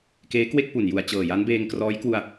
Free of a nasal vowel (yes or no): yes